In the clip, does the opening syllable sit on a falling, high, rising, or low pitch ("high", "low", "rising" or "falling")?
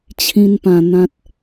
high